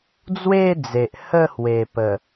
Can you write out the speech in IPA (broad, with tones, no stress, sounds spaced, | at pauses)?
d͡z w e˥˧ d͡z e˨ ʔ h ə˥˧ h w e˨˩ p ə˨˩